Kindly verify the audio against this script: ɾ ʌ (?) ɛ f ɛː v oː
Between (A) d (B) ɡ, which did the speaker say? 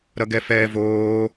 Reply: B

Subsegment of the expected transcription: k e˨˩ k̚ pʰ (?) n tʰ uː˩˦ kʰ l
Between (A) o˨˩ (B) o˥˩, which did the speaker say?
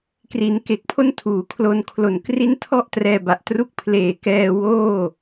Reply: B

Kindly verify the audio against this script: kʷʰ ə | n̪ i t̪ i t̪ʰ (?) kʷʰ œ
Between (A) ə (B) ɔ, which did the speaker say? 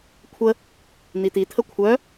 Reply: A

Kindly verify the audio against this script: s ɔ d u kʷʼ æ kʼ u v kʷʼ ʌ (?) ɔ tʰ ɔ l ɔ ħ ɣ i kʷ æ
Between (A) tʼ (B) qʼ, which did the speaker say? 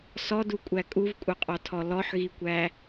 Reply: B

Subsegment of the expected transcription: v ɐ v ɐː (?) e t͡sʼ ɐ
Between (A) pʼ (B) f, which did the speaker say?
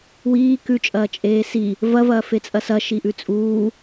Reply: B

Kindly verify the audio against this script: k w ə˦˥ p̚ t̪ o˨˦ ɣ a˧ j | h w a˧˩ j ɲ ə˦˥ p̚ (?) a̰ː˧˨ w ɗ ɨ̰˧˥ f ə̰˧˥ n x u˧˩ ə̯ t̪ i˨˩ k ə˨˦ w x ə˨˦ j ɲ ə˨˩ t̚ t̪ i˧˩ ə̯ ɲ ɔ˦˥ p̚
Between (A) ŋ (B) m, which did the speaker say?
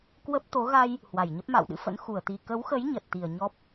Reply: B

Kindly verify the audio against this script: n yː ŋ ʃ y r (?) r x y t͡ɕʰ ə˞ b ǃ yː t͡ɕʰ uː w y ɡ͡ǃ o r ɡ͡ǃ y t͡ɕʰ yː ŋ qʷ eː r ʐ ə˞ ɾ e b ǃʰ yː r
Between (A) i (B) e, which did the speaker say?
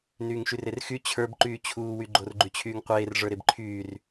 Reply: B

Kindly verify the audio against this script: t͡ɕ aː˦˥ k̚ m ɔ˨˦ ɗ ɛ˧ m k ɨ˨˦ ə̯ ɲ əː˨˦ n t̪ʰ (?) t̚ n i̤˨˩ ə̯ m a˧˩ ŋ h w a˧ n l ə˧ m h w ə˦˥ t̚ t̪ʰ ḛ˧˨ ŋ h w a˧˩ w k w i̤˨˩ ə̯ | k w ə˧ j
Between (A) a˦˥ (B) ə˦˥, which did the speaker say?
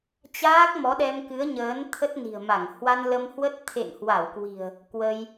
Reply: B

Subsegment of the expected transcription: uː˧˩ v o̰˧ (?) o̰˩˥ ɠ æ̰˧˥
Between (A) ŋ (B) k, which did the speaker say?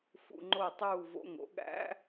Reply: A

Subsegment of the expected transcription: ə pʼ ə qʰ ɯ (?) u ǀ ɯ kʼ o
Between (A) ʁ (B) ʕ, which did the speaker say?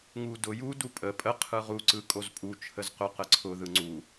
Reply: A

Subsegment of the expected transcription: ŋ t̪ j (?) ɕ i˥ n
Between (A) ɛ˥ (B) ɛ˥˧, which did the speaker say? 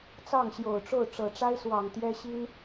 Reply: A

